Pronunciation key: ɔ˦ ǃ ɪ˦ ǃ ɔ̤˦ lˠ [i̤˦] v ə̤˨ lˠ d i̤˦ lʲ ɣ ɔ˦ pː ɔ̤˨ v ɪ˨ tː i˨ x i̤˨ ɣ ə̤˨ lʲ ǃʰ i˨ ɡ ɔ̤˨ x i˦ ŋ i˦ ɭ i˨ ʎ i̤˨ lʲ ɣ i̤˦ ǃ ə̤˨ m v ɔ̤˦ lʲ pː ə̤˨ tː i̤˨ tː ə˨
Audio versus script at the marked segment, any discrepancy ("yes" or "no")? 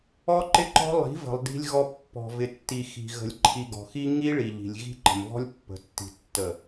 yes